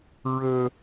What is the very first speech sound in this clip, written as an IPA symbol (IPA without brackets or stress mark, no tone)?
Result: ɹ